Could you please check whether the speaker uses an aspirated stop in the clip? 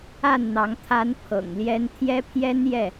yes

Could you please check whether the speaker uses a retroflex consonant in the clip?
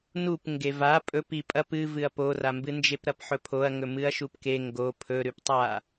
no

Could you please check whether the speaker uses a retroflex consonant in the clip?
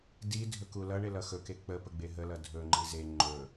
yes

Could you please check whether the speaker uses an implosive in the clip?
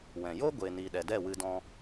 yes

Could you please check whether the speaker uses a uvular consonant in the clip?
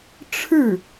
no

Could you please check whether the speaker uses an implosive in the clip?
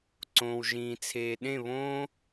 yes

